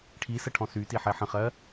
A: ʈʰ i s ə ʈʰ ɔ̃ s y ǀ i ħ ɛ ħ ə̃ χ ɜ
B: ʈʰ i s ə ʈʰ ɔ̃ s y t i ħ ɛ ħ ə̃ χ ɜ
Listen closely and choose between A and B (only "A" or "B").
B